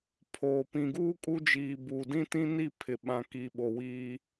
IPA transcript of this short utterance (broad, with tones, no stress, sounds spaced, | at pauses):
pʰ oː˨ p ĩ˨ ɡ uː˦ kʼ u˦ d͡ʒ iː˨ b uː˨ d ĩ˦ t ĩ˦ n i˦˨ pʰ ɪ˨ ɓ ã˨ k iː˨ ɓ o˨ w iː˦